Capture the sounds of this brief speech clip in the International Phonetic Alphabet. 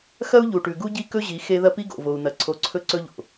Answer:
xɐ˦u̯ʎu˨ʈʉ˨ ɡu˦ɟi˦kɵ˦ʑi˨˦ xe˦ ðɐ˦pi˦ɡo̰˨ vo˨u̯n̪ɐ˨ ǀʰo˨˦ǀʰɵ˦˨ǀɵ˦ʎo̰˨

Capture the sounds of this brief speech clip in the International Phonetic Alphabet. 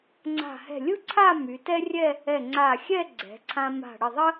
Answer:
ŋ͡ǀa̤˧˩hɛ̤˧˩lʲɯ˥ǀʰa˥˧ my˩˧tɛ˥rʲɛ˥˧ | ɛ˧˩ŋ͡ǀa˧˩xʲɛ˥˧ɡ͡ǀɛ̤˩˧ ǀʰã˧ma̤˧˩ ɽə˧˩ðˤə˥

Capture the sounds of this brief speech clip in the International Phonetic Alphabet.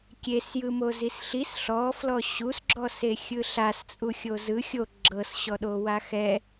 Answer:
kʲesjɯmo zisɬis ɬɔ flɔɕusɡ͡ǁɔs exʲɯɬas t͡sʼuxʲozɯ xʲo ɡ͡ǁɤsɕɔɗowa xɛ

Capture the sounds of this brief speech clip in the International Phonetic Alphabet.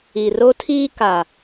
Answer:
i˨ro˦tʰiː˦ ka˨

